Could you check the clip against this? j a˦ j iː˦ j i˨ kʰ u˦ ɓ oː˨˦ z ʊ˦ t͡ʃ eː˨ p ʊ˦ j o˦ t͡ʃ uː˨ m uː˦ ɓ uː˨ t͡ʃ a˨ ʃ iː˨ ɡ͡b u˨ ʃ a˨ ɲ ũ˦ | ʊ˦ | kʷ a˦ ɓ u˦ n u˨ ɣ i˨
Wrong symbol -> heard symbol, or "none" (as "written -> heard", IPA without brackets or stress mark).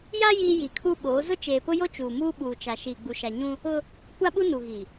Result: none